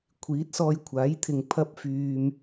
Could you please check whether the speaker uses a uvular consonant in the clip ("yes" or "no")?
no